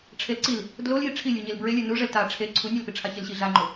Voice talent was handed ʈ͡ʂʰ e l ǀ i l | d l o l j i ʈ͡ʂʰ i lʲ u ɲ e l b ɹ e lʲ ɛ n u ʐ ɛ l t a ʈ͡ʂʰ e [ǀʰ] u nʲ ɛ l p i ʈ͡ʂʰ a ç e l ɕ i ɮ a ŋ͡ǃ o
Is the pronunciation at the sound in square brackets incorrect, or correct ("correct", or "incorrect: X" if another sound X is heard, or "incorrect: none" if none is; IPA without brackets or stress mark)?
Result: correct